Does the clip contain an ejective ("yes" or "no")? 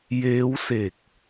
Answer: no